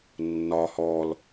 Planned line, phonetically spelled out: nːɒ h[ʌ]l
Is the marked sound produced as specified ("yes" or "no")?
no